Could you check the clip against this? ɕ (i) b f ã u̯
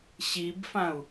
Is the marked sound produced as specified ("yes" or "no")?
yes